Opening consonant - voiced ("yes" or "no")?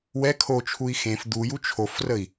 yes